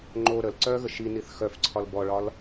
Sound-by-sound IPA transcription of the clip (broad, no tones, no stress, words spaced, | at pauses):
ŋ͡ǃo ɾəl ǀœɣə ʃiniθ xœf ǀʰɒlbɔɭɒl